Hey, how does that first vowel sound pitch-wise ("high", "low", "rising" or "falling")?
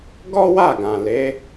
high